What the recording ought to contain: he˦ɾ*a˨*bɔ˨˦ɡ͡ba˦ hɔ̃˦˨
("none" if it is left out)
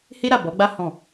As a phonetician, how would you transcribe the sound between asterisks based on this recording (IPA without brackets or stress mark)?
a˦˨